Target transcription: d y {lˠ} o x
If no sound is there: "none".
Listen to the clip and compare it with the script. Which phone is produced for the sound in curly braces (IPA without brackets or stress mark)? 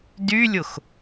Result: lʲ